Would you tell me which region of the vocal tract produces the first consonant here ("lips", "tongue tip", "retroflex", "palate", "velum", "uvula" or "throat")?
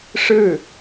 retroflex